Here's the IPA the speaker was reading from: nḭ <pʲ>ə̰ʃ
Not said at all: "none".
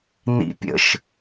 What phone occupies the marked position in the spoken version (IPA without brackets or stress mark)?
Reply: pʲ